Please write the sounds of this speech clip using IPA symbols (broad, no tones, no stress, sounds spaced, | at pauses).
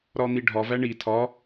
ɾ ɒ n̪ i ɖʱ ɒ v æ ɳ i tʰ ɒ